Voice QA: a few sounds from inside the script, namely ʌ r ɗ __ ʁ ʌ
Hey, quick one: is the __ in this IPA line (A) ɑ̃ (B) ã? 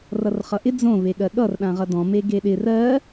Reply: B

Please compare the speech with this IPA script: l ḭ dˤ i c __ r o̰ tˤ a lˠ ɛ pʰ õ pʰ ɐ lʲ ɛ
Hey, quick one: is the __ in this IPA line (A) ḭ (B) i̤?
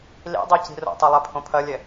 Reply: B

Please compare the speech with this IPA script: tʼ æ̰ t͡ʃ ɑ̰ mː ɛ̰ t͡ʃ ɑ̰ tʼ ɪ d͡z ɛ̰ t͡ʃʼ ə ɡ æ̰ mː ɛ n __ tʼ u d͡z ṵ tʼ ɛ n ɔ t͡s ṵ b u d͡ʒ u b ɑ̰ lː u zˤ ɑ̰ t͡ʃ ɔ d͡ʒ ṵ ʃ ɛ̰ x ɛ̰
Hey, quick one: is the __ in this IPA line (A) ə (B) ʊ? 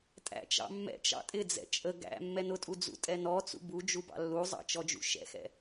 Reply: B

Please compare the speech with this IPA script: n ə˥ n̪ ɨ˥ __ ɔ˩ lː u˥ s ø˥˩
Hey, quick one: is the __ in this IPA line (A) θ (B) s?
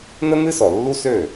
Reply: B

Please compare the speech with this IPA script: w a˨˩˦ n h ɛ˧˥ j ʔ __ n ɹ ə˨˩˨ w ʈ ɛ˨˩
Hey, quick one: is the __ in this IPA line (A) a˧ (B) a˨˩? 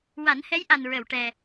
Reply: B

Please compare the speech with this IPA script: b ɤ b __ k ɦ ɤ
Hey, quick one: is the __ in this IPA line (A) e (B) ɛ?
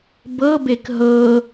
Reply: A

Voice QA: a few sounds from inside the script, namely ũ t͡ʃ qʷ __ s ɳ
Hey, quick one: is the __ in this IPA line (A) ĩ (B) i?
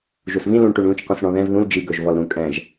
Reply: A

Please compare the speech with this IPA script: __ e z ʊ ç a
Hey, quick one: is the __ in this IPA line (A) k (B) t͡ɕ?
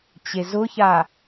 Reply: B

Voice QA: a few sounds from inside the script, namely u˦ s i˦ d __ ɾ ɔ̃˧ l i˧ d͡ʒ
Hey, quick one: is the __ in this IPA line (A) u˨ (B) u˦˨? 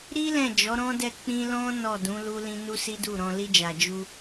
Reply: B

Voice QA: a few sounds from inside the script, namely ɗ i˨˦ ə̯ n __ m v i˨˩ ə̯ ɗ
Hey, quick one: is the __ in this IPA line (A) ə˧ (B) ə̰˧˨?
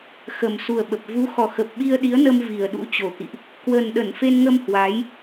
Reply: A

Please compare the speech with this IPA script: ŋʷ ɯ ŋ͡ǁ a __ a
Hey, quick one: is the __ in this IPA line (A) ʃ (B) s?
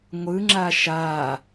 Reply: A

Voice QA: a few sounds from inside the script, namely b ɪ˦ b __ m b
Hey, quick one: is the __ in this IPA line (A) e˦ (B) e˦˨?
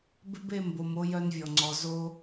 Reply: B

